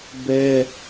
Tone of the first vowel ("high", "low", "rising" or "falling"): high